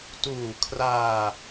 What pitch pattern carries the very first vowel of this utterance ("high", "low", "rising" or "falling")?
low